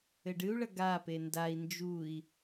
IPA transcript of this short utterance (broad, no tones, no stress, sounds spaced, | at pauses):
ɘ ɖ ɨ u̯ ɭ ɐ ɡ a p e n d a i̯ n d͡ʒ u i̯